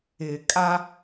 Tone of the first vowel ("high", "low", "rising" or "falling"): low